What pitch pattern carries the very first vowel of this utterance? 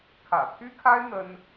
low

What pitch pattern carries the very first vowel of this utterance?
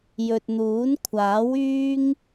low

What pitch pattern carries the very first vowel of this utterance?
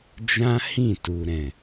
high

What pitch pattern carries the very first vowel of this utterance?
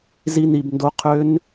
high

